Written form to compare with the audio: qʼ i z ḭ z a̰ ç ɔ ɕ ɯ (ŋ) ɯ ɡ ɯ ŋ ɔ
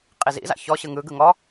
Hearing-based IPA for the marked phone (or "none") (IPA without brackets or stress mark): ŋ